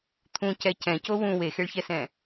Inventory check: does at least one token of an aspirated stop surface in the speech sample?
yes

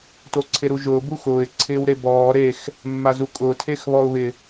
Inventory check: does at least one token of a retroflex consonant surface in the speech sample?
no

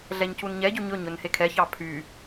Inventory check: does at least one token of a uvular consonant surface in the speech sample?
no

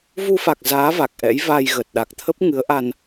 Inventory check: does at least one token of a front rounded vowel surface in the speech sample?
no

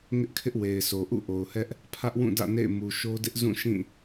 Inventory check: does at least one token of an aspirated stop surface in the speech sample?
yes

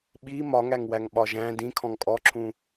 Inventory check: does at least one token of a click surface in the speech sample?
yes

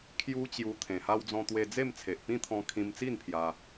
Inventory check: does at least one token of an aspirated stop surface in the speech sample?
yes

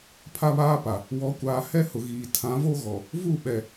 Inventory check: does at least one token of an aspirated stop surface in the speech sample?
yes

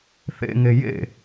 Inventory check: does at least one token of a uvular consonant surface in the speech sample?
no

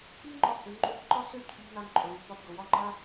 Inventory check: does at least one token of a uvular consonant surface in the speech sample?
no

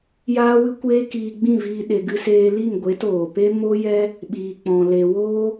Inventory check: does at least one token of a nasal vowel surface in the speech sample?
yes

